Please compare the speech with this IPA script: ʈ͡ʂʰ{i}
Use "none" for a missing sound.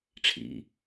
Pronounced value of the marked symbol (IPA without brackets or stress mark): ḭ